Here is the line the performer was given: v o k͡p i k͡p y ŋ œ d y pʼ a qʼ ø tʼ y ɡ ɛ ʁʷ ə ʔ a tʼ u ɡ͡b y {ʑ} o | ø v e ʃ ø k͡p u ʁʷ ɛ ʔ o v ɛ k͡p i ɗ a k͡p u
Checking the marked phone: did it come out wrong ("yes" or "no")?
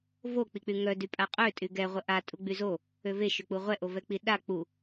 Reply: yes